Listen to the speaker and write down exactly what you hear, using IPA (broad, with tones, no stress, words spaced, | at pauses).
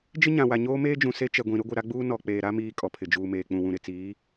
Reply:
d͡ʒɪ˦ɲã˨wa˨ ɲoː˦meː˦d͡ʒũ˨ se˦t͡ʃɛ˨ɡʷĩ˨ ɾʊ˦ɡʷɪ˨ ɾa˦ɡ͡buː˦ nɔ˨k͡peː˨ɾa˦ miː˦kʼɔ˨pʰɪ˨ d͡ʒuː˨meː˨k͡pũ˨ wũ˨ɾɪ˨t͡siː˨˦